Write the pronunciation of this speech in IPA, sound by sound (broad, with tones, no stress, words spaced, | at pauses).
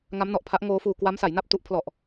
ŋa˦˥mnɔ˨˩ʔpʰa˦˥ʔ ŋoː˦˥fuː˧ kwa˦˥msa˩˦jna˥˩p̚ tu˦˥ʔ pʰlɔ˨˩ʔ